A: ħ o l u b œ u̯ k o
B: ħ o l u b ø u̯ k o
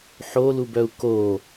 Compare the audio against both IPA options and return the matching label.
A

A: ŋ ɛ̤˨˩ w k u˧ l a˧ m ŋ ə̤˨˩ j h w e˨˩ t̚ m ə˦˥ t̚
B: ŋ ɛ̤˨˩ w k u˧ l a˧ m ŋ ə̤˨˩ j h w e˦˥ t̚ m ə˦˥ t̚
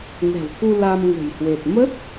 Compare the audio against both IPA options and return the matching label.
A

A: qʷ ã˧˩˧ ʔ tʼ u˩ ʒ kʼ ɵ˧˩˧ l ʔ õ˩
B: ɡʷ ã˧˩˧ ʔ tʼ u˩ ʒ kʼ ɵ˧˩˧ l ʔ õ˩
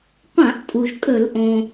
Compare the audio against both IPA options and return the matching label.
A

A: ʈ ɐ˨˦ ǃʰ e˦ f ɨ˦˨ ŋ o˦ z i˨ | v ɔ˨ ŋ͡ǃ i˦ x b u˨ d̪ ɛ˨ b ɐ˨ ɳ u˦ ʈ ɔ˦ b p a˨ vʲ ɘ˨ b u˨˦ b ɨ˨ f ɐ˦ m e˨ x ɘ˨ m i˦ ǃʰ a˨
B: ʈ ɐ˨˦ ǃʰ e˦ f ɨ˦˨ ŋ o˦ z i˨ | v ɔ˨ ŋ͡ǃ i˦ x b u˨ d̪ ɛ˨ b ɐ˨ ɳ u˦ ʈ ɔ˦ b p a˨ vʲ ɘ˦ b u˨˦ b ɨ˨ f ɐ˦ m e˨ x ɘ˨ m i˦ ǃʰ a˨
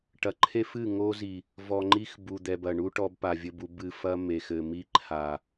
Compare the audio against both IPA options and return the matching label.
B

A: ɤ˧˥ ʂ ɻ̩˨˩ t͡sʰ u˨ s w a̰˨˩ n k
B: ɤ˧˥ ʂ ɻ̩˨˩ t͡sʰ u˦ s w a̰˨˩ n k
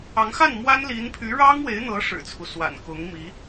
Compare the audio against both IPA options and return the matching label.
B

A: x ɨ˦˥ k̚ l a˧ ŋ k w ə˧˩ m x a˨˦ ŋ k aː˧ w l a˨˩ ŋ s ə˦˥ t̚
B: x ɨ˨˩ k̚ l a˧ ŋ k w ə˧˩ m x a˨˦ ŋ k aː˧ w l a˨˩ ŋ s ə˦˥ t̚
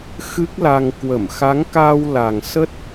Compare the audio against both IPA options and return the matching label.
A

